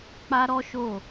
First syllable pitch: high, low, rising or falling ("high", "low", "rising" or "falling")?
high